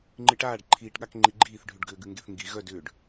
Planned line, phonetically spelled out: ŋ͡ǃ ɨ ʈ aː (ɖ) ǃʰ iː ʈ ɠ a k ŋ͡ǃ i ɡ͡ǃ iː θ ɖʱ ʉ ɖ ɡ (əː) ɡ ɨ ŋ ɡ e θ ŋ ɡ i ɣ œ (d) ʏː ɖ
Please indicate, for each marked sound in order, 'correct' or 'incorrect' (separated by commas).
correct, incorrect, correct